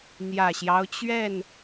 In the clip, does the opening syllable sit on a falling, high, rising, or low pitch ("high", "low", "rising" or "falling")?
low